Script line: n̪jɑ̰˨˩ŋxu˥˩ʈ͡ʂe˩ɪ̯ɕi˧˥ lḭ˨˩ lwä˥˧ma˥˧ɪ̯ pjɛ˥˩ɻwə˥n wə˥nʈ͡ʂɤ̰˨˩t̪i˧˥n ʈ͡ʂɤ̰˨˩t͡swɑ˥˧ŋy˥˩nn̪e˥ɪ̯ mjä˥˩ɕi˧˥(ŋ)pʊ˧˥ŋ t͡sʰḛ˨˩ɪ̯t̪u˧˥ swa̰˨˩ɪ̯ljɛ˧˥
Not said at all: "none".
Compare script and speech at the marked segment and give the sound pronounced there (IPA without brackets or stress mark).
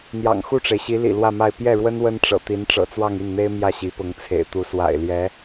none